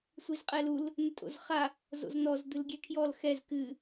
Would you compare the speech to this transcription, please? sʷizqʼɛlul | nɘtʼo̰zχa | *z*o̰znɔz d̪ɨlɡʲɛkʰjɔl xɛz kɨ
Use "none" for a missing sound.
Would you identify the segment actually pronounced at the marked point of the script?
z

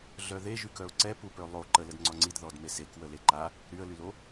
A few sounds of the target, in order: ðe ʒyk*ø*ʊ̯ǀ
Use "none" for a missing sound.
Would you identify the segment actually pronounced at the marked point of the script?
œ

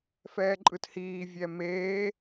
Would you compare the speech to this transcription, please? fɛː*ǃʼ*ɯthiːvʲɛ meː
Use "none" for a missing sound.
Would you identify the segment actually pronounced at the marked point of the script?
ǃʼ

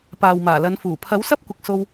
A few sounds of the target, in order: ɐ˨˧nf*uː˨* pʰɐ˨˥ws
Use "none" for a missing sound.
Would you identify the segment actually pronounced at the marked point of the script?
uː˨˩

